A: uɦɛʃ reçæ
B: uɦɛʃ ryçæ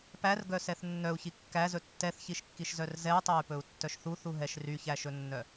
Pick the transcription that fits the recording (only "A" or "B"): B